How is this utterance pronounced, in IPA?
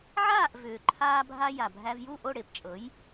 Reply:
ʕ aː˥˩ ʔ v ʏː˩ ǃʰ aː˧ bʱ a˧ j a˩ bʱ æ˧ v j u˥˩ ʔ o˥˩ ɽ e˧ p t͡ʃʼ ɤ˩˥ j

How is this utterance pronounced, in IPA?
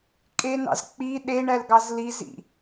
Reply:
kʼ e n ɑ̰ z k͡p i ɗ e ɳ æ l ɡ ɑ z l i z ḭ

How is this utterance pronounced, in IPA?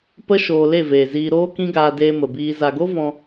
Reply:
p ə˦ ʃ oː˧ l e˦˨ v eː˨ z iː˧ ɾ oː˦ k ĩ˦ ɡ aː˧ d eː˧ m ə˨ b iː˧ z a˨ ɡ o˦ v ɔ̃˧

